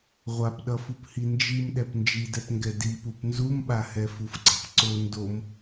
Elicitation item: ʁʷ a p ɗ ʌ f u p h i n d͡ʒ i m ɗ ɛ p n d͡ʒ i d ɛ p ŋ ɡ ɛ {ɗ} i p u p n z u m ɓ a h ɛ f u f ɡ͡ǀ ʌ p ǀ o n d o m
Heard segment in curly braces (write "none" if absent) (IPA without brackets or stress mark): d